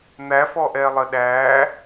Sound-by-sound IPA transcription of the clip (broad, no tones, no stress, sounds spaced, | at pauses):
n̪ æ f ɔ ʔ ɛ lˠ ə ɗ æ